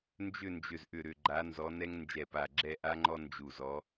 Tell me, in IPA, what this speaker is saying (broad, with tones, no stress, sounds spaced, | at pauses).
n d͡ʒ ʏ˥˨ n d͡ʒ ʏ˧˩ z ʔ ʏ˧˩ ɾ ʏ˧˩ ɡ͡ǃ a˨˥ n z ɔ˨˥ n ɛ˥ ŋ n d͡ʒ ɛ˧˩ p a˧˩ ɡ͡ǁ ɛ˥˨ ʔ a˥ ŋ͡ǃ ɔ˥ n d͡ʒ u˧˩ z ɔ˨˥